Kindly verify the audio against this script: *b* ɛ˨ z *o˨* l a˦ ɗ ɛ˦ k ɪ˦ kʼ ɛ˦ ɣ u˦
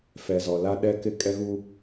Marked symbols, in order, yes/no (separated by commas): no, no